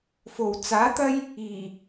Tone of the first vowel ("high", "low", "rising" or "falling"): low